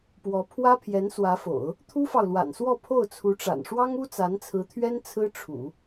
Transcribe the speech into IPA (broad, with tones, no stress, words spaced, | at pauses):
pwɔ˧˥ pʰwä˥pʰjɛ˧˥n swä˧˥fo̰˨˩˦ʊ̯ | t̪ʰu˥fɑ˨ʊ̯lwa̰˨˩nswɔ˥˧ pʰo˥˩ʊ̯t͡sʰu˧˥ʈ͡ʂa̰˨˩n ʂwɑ˥ŋu˥ t͡sa˧˥nt͡sʰɹ̩˧˥t̪ʰɥɛ˥n t͡sʰɹ̩˥ ʈ͡ʂʰṵ˨˩˦